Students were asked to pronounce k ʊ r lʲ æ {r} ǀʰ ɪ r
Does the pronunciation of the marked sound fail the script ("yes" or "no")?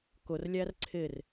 no